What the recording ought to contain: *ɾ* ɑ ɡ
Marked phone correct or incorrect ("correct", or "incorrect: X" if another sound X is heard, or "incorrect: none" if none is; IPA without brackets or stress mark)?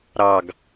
correct